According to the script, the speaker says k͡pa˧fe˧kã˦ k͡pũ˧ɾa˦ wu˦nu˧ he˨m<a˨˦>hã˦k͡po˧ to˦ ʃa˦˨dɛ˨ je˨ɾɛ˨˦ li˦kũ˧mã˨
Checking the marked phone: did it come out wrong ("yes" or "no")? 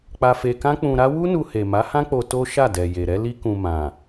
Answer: no